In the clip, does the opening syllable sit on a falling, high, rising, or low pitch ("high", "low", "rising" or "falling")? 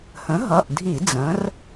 rising